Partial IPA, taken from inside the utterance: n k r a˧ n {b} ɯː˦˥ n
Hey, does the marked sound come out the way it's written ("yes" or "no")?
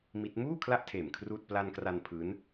no